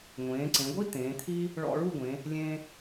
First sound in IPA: ŋʷ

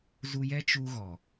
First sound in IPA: z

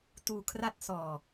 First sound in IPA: t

